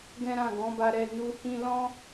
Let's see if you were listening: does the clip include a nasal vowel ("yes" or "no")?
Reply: yes